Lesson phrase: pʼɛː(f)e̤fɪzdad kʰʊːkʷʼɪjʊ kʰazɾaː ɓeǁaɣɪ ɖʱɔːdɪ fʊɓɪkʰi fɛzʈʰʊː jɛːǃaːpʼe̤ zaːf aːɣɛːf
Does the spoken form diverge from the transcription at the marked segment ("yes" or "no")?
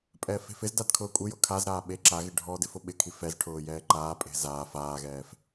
no